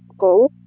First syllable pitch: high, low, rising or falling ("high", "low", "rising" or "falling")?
rising